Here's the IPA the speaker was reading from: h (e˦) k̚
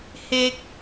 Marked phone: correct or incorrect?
incorrect